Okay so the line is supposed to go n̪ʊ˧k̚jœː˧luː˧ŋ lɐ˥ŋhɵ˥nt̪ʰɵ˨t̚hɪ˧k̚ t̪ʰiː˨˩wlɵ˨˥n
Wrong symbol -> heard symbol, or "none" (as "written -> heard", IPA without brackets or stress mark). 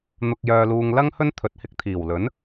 none